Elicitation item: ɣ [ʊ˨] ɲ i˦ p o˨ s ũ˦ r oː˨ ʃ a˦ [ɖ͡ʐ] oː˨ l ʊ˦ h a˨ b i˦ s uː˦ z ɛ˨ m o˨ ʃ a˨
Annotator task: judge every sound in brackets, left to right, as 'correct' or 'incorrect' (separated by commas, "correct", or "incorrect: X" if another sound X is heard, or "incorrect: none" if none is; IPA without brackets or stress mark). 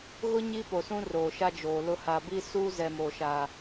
incorrect: ʊ˦, incorrect: d͡ʒ